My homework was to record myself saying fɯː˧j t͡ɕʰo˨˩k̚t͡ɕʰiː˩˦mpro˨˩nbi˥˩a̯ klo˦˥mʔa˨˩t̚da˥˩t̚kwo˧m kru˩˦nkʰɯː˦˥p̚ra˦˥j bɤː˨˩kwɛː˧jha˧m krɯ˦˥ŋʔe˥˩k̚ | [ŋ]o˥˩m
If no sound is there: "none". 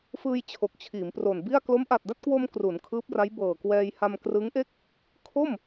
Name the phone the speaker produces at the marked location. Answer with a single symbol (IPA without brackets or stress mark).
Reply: kʰ